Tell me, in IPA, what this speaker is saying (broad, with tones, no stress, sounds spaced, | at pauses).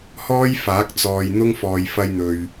h ɔː˥ j f aː˨˥ k̚ t͡s ɔː˨ j n̪ ʊ˥ ŋ f ɔː˨ j f ɐ˧ j n̪ ɵ˨ ɥ